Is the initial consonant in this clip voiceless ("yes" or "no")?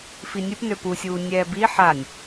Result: yes